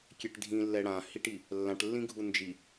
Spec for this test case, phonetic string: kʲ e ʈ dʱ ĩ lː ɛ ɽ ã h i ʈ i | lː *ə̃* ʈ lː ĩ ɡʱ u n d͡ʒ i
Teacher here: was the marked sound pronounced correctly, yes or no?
no